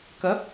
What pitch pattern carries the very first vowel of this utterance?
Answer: rising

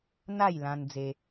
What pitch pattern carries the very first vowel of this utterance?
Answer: falling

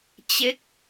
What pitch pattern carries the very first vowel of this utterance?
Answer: falling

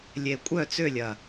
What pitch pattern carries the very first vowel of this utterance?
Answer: low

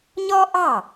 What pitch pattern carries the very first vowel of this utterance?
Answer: high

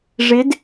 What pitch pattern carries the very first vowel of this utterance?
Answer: rising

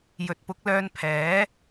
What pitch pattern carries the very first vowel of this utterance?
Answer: rising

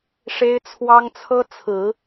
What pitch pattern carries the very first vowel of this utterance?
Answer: high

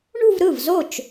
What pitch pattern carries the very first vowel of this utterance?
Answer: falling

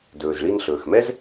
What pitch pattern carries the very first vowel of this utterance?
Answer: low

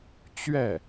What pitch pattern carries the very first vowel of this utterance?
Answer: falling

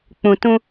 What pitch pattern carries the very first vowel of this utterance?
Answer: low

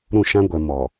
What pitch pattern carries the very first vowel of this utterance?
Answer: falling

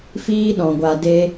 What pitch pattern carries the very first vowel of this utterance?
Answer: high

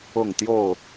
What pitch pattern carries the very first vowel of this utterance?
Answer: falling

